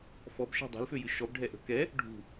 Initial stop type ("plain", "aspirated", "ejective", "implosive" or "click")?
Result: plain